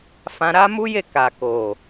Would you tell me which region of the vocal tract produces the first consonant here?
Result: lips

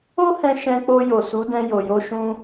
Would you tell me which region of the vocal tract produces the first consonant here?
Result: throat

